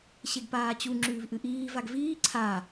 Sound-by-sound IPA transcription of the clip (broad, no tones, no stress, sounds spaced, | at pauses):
ɕ e ɡ p aː t͡ɕ u ŋ͡ǁ ʉː v ʔ ɨ ʔ iː v a ɡ v iː ǀʰ a